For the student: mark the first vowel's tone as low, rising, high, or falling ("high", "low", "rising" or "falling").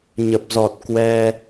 low